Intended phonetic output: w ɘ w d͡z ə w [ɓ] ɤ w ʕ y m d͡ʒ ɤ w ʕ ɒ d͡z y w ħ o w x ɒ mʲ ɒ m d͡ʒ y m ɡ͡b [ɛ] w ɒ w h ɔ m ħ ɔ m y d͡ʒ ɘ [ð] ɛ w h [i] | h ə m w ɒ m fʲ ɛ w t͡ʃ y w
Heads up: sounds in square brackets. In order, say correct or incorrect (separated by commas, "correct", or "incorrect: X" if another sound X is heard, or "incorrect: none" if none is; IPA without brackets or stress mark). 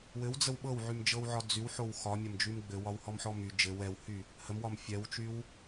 correct, incorrect: ɘ, incorrect: w, incorrect: y